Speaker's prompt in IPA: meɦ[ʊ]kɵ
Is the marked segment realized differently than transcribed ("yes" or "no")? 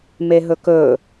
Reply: yes